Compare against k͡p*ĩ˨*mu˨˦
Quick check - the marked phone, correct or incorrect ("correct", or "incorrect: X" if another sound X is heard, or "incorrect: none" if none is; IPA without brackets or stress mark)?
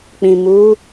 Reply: correct